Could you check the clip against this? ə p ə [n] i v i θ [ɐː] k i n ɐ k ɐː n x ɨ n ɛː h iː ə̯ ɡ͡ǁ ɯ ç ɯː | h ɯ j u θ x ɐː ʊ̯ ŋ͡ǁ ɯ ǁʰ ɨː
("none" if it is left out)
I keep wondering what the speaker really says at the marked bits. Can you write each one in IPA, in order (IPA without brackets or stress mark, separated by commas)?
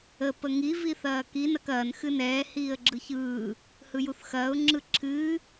ŋ, ɐː